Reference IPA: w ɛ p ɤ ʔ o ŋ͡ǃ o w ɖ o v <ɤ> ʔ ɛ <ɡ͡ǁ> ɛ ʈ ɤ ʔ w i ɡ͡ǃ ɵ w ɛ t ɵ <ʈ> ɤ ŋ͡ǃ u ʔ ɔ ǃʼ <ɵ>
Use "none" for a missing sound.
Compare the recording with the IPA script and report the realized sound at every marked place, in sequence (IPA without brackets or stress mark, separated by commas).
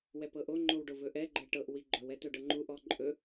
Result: ɵ, ɡ͡ǃ, ɖ, ɵ